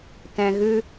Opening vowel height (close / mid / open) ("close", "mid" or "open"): mid